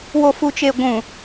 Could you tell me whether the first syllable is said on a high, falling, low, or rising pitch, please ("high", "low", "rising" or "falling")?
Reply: low